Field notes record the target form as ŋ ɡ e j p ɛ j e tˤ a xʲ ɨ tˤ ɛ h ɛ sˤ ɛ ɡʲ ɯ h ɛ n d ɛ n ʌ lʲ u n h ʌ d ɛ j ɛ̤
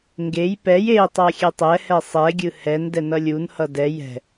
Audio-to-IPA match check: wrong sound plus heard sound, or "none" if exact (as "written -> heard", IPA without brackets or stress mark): ɨ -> ɛ